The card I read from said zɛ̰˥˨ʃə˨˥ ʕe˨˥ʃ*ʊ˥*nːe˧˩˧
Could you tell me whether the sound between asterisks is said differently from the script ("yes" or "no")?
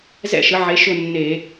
yes